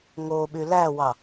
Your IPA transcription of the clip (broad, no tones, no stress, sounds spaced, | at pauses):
ŋ o ɓ y l æ w ɑ